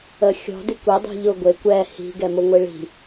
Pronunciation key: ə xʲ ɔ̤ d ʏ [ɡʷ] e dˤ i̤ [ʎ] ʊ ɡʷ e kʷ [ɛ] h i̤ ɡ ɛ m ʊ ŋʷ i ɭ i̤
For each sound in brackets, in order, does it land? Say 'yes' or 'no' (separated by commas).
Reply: no, yes, yes